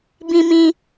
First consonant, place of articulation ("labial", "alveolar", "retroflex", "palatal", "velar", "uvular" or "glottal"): labial